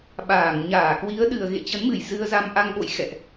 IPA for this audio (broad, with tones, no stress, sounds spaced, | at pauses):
ɓ aː˧˩ ŋ ɲ aː˧˩ k w i˨˦ ə̯ ɗ ɨ˨˩ ə̯ ɣ ḛ˧˨ t͡ɕ ə˨˦ n m ɨ˧˩ j z ɨ˧ ə̯ z a˧ m ʔ a˧ ŋ ɓ o̰˧˨ j x ɛ̰˧˨ ʔ